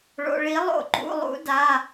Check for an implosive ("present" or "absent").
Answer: absent